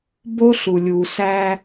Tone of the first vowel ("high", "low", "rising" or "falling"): high